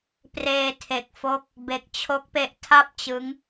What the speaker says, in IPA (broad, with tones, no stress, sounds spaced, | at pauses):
p r eː˧ tʰ e˨˩ k̚ f o˦˥ k̚ | b e˨˩ k̚ t͡ɕʰ o˦˥ k̚ p e˦˥ ʔ tʰ a˥˩ p̚ t͡ɕ ɯ˦˥ ŋ